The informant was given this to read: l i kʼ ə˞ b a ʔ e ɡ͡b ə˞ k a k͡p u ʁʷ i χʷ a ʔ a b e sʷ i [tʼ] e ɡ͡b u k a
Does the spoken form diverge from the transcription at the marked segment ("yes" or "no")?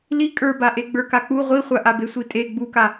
no